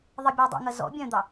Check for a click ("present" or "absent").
absent